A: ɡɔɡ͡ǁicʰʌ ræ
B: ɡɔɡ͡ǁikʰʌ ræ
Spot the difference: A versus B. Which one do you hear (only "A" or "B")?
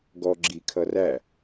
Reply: B